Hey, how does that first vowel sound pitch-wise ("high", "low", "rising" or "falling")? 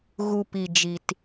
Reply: low